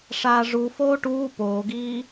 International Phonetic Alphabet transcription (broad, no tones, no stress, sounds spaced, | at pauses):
ʂ aː ʐ u f oː ʈ uː p oː ɡ iː